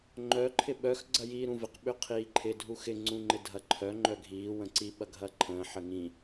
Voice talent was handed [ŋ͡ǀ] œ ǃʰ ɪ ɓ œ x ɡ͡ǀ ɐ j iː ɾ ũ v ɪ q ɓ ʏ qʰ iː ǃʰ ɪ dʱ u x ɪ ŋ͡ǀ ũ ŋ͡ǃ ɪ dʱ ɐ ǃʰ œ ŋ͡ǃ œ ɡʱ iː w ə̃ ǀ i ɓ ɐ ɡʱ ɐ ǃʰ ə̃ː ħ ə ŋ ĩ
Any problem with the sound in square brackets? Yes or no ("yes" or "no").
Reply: yes